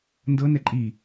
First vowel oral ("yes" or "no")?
yes